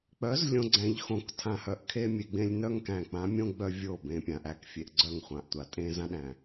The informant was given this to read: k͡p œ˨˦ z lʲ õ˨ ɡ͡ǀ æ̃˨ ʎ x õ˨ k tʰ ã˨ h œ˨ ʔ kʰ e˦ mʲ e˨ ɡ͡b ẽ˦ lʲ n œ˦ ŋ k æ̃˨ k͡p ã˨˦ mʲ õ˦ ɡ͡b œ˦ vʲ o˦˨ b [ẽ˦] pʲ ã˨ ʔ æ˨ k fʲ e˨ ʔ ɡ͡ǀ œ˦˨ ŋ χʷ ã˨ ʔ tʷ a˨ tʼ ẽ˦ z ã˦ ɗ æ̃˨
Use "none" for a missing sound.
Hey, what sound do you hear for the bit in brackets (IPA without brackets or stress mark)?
ẽ˨